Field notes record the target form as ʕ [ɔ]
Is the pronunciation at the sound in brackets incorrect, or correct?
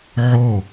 correct